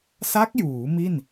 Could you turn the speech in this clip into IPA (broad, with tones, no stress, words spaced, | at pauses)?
sa˦˥k̚juː˩˦ mi˥˩n